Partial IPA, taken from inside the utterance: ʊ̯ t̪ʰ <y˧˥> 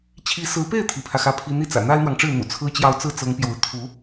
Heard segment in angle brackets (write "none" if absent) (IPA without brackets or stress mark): u˧˥